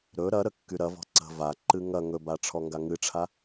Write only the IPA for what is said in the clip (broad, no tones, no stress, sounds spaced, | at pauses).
ɾ ɵ ɾ ɐ ɾ ə kː y ɾ ɐ v ɔ̤ ǀ ə̤ v a ǃ ɨ ŋ ɐ ŋ ɵ b a ʈ͡ʂʰ ɔ ŋ ɡ a ŋ ɨ ʈ͡ʂʰ a